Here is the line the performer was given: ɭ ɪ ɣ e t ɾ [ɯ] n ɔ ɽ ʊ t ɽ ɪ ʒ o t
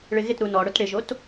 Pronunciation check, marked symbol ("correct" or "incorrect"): incorrect